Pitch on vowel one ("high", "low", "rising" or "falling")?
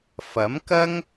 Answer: rising